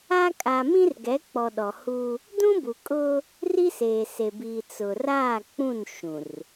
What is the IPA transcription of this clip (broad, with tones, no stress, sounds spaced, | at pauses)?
a˦ kʼ a˨ m ĩ˦ r ɡ ɛ˨˦ k͡p ɔ˨ ɗ ɔ˨ h u˦ | d ũ˦ b u˨ kʼ ʊ˦ | r i˦ s eː˨ s e˨ b iː˨ t͡s ʊ˨ r aː˦˨ k͡p ũ˦˨ n ʃ ũ˨ r